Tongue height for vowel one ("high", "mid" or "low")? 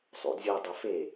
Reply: high